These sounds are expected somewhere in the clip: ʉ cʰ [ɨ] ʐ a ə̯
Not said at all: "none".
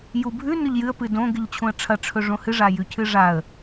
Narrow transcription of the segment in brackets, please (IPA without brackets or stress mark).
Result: ɨ